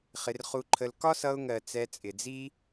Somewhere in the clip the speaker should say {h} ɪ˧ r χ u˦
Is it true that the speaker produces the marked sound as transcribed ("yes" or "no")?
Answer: no